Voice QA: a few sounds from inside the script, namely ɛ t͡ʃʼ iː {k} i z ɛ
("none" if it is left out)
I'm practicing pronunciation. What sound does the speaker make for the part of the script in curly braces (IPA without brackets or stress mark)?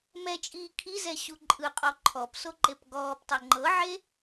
kʰ